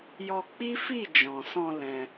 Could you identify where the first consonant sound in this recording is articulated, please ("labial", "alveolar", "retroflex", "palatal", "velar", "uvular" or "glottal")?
palatal